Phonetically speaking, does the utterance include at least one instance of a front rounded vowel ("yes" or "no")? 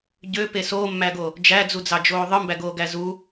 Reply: yes